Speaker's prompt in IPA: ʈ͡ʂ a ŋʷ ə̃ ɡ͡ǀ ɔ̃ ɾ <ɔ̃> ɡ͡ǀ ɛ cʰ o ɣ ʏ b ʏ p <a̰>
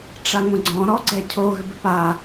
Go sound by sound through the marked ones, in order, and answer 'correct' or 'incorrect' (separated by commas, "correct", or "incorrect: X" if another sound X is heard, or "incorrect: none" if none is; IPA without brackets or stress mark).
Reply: incorrect: ɔ, incorrect: a